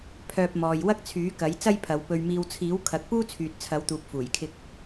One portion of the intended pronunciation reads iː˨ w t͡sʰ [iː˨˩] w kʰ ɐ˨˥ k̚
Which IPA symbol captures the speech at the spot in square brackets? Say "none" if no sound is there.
iː˨˥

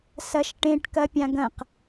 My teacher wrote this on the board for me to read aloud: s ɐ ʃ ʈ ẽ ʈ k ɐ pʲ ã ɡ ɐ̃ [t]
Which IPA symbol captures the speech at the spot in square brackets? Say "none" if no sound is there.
q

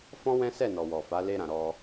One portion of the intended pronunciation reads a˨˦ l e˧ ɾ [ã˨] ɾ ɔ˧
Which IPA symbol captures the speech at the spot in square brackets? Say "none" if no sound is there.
ã˨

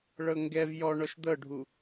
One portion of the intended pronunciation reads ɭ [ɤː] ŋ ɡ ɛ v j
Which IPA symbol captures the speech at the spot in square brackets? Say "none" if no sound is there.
ɤ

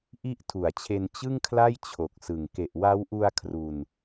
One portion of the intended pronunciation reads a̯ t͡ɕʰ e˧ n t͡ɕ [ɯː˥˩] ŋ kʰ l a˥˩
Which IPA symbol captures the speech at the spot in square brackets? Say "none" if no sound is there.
ɯ˥˩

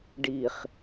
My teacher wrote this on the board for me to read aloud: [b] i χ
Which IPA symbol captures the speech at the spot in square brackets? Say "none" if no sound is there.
ɖ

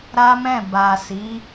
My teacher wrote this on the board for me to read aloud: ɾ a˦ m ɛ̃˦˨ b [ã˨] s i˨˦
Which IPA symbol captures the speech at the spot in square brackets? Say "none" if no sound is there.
a˨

